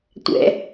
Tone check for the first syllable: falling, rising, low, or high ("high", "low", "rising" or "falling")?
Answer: low